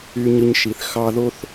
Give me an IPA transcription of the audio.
y˨ ɲ ɯ˨ ɲ ʃ i˩ θ x ɑ˦ ð o˥ θ

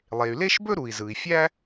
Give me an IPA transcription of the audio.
lˠ e˩ y̯ l e˥ ʃ b ɵ˥ ɾ u˩ i̯ z ɯ˩ i̯ fʲ æ˥

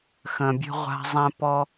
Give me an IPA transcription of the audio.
x ə̃˩ bʲ ə̤˧ ʁʷ a̤˧ zˤ ɛ̃˧ p ɔ˧

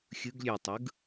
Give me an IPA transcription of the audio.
xʲ ɯ ɡ lʲ ø tˤ ɯ ɡ

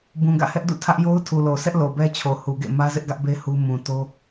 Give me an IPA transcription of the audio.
b ũ˨ ɡ ä̰˦˨ h ɛ˦ ʔ d ṵ˦˨ tʰ ä˦ ʔ j o˦ ʊ̯ tʰ u˨ l o˨ sʰ ɛ˦ ʔ l o˨ b ɛ˦ t͡ɕʰ o˨ h u˨ ɡ ḛ˦˨ m ä˦ z ɪ˦ ʔ ɡ ä˦ ʔ b e˦ h u˦ m ũ˨ t o˦

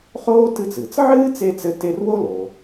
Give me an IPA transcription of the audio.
χ oː˥ t ɨ˦ t͡s ɨː˩ t͡s ʕ ɨː˥ t͡s e˥ t͡s ɘ˦ t e˦ r w o˥ l o˩

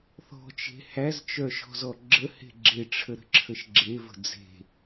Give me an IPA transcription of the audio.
θ ɔ̤ t͡ʃ e̤ h æ z t͡ʃ œ ʃ ɔ̤ z ɔ ɡ͡ǁ ə h e̤ ɡ͡ǁ e ʈ͡ʂʰ ə ɾ ə̤ ǁʰ ə ʃ ɡ͡ǁ e v ə̤ d͡z e̤

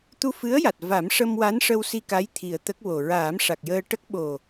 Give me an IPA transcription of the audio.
t̪ u˧ f ɨ˧˥ ə̯ j a˨˩ t̚ v a˨˩˦ m ʂ ə˧ m w a˧˥ n ʂ ə˧ w s i˧ k a˧˥ j t̪ʰ i˨˩ ə̯ t̪ ə˦˥ k̚ w o˨˩ ɹ aː˨˩˦ m ʂ a˨˩ k̚ j əː˧ ʈ ə˦˥ k̚ ɓ o˨˩

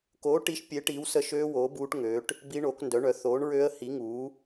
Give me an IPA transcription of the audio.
k oː˨˥ ʈ i˨˥ ʃ pʲ e˨˥ ʈ iː˨˥ w s ə˦˥ ʃ øː˦˥ w oː˨˥ b uː˦˥ ʈ ŋ ø˨˥ ʈ | b i˦˥ ɳ oː˨˥ k n d œ˨˥ ɳ œ˨˥ θ oː˨˥ ɳ ɹ ø˦˥ ə̯ h i˨˥ ŋ uː˨˥

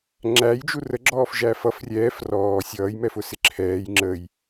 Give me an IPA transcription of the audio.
ŋ͡ǁ æ j d͡ʒ u r ə ɡ͡ǁ ɔː f ʒ æ f ʌ f rʲ ɛː f r ɔː sʲ ʌː j m ɛ f ʊ s ɪ ǁʰ ɛː j ŋ͡ǁ ə j

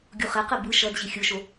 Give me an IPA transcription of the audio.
ɡʲ u χ ɛ q ɛ b ɯ ʃ ʌ d ʑ i xʲ ɯ ʃ o

